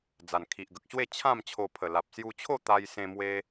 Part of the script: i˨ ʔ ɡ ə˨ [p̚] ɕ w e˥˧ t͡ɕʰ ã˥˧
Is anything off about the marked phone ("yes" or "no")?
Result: yes